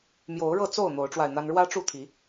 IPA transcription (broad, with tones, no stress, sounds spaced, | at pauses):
m j o˨˦ ʊ̯ ɻ ɤ˥˨ t͡s o˥˨ ʊ̯ n̪ o˨˦ ʊ̯ ʈ͡ʂ w a˧ ɪ̯ n̪ a˦ n ɻ w ä˦ ʈ͡ʂ u˥˨ t̪ʰ i˨˦